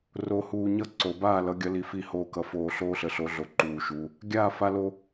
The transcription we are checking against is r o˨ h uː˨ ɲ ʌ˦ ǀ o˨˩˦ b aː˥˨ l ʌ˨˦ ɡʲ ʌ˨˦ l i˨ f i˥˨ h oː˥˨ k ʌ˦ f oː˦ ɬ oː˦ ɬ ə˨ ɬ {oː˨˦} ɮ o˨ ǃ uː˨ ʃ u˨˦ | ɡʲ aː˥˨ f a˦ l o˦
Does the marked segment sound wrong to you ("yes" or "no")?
yes